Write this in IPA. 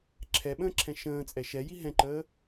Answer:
ǁʰ ɛ ɓ ə̃ː ǁʰ ɛ̃ ʃ ə̃ː t͡sʼ ɛ ʃ ɛ j i ɦ ɛ̃ ǃ əː

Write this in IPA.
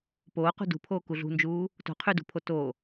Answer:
p oː q ṳ d ṳ pʰ oː k u ɮ ṳ n d͡ʒ uː | t o̤ qʰ y d ṳ pʰ o t o

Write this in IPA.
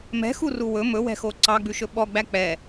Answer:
m ɛ̤ x u r u w ɵ m ɵ w ɛ̤ x o ǀ ɑ ɡ͡b ʉ ʃ ɵ ɓ ɔ ɡ͡b æ k͡p ɛ

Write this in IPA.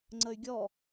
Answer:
ŋ͡ǀ ə y̯ ɡʲ ɔ

